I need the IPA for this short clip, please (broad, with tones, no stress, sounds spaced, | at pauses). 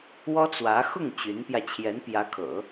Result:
w ɔ˥ t͡s w ä˧˥ x ʊ˥˩ ŋ t͡ɕ y˧˥ n p j ä˧ t͡ɕʰ j ɛ˧˥ n p j ä˧˥ kʰ ɤ̰˨˩˦